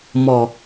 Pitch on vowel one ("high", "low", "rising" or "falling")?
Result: low